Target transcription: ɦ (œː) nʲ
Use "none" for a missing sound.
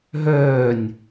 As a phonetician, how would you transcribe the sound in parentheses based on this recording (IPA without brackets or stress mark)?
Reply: œː